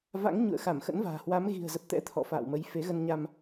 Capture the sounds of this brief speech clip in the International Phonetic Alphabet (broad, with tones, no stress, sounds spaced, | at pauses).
v a̰˧˥ ŋ ɲ ṵ˧˨ ə̯ x a˧˩ m x ə̰˧˥ n v a̤ː˨˩ h w a˨˦ m ɣ i̤˨˩ ə̯ z ə˨˩ p̚ t̪ ɛ̰˧˥ t̪ʰ ɔ̰˧˨ f a̰ː˧˨ w m ə˨˦ j f e˨˦ ɣ ə˧ n ɲ a˧ m